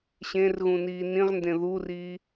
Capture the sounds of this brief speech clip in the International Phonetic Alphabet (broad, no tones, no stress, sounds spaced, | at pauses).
ɕ ẽ r ɣ ũ n iː n ĩ ʁ n d ẽ ð u r iː